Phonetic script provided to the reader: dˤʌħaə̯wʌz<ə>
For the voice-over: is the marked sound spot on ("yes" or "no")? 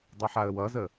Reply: yes